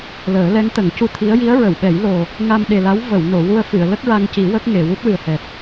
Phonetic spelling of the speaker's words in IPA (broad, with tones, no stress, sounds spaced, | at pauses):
l əː˨˩˦ l ɛ˧˥ ŋ t̪ ə˨˩˦ ŋ c u˧ t̪ʰ i˧˥ ə̯ j i˧˥ ə̯ ɹ ə˨˩˨ w ɓ ɛ˨˩˦ j l o˨˩ | ŋ a˧ m ɗ e˨˩ l a˧˥ w v ə˨˩˨ w n o˨˩˨ w u˧ ə̯ f ɨ˨˩˨ ə̯ l ə˦˥ k̚ ɹ a˧ ŋ c i˨˩˦ w ə˦˥ k̚ ŋ e˨˩˨ w u˦˥ t̚ w ɨ˨˩ ə̯ h ɛ˨˩ t̚